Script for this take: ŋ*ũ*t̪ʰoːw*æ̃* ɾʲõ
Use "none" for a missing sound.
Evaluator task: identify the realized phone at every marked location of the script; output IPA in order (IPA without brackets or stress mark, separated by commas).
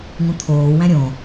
ũ, æ̃